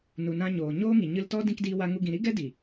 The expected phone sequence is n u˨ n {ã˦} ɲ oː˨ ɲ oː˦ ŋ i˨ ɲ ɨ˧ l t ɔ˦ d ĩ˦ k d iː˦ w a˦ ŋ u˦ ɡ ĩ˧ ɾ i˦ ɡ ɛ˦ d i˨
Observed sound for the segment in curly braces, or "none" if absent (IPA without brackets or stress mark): ã˧